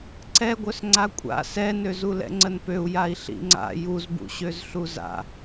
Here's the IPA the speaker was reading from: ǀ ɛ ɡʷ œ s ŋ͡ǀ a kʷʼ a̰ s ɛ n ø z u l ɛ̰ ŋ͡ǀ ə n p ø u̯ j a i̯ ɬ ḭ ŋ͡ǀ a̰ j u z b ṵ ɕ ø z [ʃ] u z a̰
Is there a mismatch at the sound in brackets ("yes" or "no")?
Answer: yes